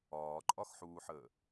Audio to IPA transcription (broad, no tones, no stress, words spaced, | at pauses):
ɒːǃʼɒxħuːħəː